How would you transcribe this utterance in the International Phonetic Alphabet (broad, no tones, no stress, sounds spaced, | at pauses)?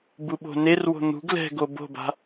b u ɓ o̤ n e r w o̤ n̪ ṳ ɡ l ɛ̤ ɡ o b o̤ b a̤